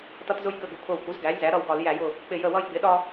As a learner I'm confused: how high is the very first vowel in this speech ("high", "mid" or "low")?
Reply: mid